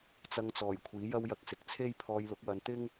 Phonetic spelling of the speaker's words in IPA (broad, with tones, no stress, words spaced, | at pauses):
t͡sɐ˧ŋt͡sɔː˨˩j kʷʰiː˨˥jɐ˥wjɐ˧k̚sɪ˨k̚ t͡sʰe˥jpʰɔː˧jlʊ˨˥k̚wɐ˧n t̪ɪ˥ŋ